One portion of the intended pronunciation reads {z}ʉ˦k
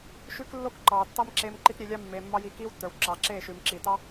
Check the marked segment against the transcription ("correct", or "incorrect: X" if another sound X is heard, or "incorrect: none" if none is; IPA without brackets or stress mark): incorrect: ʃ